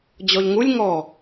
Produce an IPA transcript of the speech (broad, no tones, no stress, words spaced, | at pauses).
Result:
d͡ʑɔʎŋulʲ ŋɔ